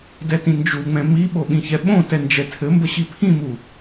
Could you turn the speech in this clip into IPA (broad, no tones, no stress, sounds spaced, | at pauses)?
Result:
d ɛ t ĩ n d͡ʒ u ŋ͡m ɛ̃ m i ɓ o ɓ ĩ ç ɛ ɓ õ t ɛ n d͡ʒ ɛ tʰ ɘ m b ə ɕ i pʰ ĩ m u